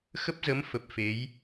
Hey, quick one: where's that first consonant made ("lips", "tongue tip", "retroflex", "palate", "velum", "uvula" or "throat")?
velum